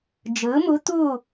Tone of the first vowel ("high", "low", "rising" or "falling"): rising